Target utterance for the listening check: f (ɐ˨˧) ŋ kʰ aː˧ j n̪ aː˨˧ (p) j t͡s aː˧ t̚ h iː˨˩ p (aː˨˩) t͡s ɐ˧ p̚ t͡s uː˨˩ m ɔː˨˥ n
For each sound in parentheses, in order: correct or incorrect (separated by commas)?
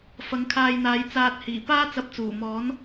correct, incorrect, incorrect